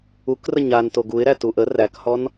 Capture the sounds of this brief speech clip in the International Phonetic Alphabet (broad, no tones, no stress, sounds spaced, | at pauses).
u k r ə ɲ a n t o ɡ u ɪ̯ ɾ æ t u ʔ ə r æ k h ɔ n